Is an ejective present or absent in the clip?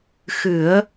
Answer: absent